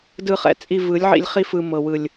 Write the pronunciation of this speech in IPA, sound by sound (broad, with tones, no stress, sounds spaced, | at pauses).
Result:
d ɯ˧ χ ɛ̰˨ t͡sʼ i˧ v ɯ˨˦ lʲ ʕ ḭ˧ lʲ χ i˧ f ɯ˨ m ɤ˨ w ɯ˨ lʲ